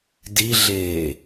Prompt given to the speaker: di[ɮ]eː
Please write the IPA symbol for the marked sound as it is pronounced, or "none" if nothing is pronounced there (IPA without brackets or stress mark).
ɮ